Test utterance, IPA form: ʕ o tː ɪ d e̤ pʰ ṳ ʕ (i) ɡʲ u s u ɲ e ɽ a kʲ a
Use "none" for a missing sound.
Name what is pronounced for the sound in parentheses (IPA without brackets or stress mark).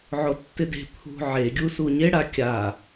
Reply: e